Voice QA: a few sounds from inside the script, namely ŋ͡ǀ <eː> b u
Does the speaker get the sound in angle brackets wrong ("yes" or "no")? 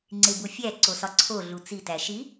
yes